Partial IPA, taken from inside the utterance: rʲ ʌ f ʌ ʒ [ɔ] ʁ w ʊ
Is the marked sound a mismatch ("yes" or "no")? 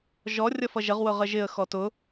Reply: yes